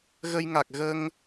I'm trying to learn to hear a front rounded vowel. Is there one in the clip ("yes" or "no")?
no